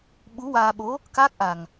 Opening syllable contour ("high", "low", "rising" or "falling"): rising